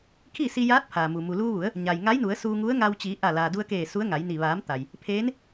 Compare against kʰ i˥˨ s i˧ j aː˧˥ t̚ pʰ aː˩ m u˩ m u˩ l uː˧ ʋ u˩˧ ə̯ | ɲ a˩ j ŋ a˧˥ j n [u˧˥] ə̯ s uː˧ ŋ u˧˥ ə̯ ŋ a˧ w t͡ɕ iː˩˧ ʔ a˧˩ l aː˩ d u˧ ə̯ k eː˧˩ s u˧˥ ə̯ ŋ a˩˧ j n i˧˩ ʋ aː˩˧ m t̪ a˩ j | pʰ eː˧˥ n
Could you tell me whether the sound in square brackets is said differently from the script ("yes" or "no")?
yes